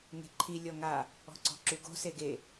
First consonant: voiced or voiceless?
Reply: voiced